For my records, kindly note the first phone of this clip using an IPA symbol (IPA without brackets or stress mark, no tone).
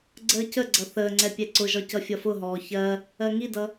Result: ɡ͡ǀ